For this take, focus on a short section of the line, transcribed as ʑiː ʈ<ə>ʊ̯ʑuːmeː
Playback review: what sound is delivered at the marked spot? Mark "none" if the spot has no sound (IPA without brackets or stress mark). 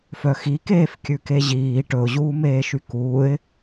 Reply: ɵ